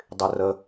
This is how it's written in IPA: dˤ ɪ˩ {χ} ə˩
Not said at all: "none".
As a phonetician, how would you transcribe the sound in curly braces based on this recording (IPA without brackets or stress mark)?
r